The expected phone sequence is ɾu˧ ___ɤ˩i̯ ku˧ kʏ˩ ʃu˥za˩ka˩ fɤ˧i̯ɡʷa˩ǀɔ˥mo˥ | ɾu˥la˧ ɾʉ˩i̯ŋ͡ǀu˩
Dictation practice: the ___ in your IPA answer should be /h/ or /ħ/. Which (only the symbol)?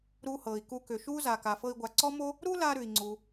h